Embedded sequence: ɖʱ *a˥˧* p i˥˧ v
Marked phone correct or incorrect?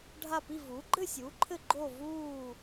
correct